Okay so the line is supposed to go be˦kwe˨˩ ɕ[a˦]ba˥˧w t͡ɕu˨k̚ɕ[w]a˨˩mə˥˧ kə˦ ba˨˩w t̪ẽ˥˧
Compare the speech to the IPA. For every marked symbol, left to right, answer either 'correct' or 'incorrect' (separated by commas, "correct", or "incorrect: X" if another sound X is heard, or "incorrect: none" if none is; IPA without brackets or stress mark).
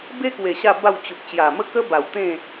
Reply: incorrect: a˥˧, incorrect: j